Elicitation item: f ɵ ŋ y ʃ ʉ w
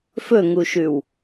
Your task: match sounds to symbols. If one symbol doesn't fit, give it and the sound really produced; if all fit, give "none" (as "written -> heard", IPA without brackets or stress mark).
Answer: y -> u